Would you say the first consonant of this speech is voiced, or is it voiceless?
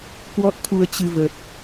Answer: voiceless